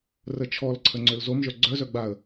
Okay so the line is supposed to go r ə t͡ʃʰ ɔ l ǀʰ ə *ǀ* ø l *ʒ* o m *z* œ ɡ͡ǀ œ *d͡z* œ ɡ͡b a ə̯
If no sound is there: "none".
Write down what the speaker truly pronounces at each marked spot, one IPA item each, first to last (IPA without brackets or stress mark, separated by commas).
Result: ŋ͡ǀ, z, ʒ, z